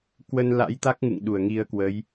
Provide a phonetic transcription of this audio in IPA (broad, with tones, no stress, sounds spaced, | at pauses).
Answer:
k w ə˧ n l a̰˧˥ j t̪ a˦˥ k̚ ŋ ɨ̰˧˨ ŋ ɗ u˧˩ ə̯ ŋ i˨˦ ə̯ k w ə˨˦ j